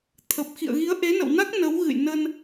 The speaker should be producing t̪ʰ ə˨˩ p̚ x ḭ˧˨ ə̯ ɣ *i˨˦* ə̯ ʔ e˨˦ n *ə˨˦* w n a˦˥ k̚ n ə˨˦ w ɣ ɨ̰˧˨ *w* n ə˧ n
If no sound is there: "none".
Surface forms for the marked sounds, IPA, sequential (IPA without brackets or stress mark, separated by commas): i˨˦, ə̰˧˨, j